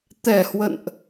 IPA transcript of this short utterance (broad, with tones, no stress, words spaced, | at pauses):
t̪ɛ˨˩hwə̰˧˨nʔ